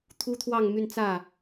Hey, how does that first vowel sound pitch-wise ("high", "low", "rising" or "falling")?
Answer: high